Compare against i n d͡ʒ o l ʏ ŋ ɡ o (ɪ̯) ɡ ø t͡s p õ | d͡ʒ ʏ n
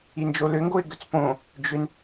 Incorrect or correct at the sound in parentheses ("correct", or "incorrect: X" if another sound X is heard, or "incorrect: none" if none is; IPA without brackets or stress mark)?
correct